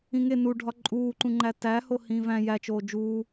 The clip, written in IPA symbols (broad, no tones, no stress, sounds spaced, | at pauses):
ĩ ŋ e n u ɖʱ ɒ ǃʼ uː ǃ ũ ŋ͡ǃ æ t æ h o h ĩː v æ̃ j æ t͡ʃ oː d͡ʒ uː